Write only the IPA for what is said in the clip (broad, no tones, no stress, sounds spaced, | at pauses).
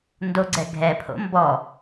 n d o ɡ͡ǀ ɛ ɡʱ ɛ pʰ o̰ m b ɔ